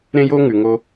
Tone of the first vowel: high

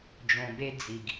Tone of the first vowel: low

